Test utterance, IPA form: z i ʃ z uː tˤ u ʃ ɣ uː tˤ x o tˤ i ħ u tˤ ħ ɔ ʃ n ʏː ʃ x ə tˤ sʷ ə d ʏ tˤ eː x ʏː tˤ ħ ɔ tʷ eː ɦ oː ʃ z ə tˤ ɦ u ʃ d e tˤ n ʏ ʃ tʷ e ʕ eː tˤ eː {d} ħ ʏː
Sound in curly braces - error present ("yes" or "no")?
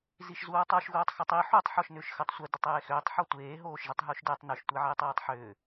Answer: yes